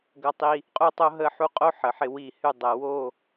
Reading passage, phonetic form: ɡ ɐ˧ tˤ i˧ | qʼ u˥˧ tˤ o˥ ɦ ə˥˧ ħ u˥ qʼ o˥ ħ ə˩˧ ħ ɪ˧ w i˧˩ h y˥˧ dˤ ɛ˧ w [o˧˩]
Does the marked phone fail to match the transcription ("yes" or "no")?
yes